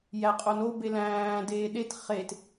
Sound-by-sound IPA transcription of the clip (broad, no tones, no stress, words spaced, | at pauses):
jæqʼono belæ̃ː deːɗet χet